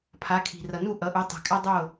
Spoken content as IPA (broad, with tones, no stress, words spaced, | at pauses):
pʰa˨˦kʰi̤˨ rʌ˨nu˦˨ʔʌ˨˦ʔu˨˦ tˤe̤˨kʼa˦dˤo˦˨